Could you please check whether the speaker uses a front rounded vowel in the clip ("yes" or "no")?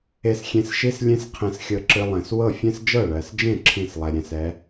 no